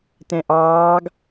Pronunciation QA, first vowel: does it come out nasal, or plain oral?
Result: nasal